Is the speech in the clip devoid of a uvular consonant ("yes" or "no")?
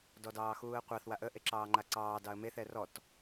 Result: no